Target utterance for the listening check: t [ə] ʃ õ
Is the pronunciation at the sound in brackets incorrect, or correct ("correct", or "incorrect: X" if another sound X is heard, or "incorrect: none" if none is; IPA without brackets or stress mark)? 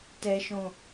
incorrect: ɛ